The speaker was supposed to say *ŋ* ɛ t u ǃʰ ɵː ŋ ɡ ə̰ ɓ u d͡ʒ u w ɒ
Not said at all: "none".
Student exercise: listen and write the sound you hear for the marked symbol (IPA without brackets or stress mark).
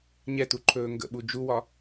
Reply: ɲ